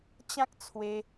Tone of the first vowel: high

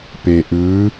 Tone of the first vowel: low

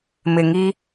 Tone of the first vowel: low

